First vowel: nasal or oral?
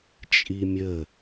oral